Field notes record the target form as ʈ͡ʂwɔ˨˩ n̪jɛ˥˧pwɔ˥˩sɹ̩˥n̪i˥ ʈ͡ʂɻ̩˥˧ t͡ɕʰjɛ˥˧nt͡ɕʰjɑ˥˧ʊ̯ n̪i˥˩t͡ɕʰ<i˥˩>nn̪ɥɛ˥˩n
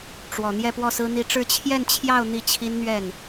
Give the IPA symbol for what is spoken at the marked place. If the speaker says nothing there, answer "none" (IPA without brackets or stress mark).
i˥